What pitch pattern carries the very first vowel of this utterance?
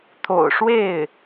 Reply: low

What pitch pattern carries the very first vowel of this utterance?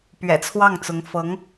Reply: low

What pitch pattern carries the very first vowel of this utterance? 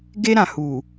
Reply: high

